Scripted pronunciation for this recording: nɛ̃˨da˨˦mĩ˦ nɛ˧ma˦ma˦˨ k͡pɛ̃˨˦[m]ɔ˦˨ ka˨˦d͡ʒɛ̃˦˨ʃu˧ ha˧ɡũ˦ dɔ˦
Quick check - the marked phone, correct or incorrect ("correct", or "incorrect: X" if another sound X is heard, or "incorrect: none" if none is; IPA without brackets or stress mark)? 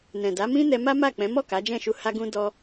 correct